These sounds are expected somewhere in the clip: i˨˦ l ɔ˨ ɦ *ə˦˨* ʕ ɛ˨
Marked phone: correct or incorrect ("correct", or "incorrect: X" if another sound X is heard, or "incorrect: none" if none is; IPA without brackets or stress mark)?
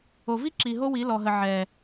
incorrect: ə˨